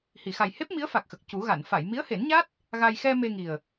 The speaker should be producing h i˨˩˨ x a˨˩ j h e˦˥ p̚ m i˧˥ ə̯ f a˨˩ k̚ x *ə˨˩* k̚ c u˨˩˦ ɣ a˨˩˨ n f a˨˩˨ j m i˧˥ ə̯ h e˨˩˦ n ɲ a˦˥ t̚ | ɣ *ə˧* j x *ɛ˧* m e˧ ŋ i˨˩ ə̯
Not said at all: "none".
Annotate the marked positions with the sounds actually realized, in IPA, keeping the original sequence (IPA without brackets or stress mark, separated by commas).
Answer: ə˨˩, a˧, ɛ˧